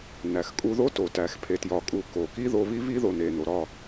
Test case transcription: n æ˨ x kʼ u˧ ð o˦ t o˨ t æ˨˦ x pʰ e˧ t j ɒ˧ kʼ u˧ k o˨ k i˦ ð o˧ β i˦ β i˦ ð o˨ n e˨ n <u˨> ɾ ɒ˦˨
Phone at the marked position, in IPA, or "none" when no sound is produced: o˨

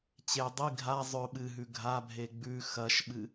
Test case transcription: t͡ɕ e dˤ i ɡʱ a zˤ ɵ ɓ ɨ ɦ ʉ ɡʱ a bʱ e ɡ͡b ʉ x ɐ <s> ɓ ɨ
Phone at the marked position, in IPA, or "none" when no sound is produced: ʃ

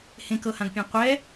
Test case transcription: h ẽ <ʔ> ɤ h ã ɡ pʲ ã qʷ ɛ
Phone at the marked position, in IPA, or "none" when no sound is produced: k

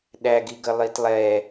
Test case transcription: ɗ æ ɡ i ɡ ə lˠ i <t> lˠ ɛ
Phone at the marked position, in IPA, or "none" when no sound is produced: t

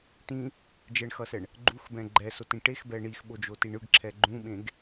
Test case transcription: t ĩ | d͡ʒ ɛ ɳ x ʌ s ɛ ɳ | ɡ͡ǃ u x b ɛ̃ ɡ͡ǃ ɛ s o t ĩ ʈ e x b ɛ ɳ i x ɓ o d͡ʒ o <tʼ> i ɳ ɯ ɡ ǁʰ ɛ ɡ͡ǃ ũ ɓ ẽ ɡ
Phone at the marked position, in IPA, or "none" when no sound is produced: t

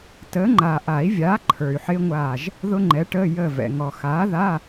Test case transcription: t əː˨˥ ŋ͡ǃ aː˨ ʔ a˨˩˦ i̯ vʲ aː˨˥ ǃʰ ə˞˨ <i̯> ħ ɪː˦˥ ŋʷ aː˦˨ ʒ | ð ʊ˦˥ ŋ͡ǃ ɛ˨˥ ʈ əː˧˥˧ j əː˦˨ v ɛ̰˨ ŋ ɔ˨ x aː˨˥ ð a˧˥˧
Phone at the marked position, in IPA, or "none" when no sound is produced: y̯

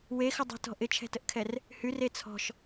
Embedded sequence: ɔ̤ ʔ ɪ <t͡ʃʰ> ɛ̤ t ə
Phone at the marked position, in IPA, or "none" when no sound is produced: t͡ʃʰ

